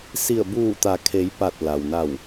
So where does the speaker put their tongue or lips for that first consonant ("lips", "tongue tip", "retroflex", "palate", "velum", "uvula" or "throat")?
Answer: tongue tip